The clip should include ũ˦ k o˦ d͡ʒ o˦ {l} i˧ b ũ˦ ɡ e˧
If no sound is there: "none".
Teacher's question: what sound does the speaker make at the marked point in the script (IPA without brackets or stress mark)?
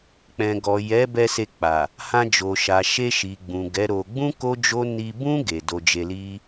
n